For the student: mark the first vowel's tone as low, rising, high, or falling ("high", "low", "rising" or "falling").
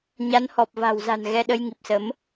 rising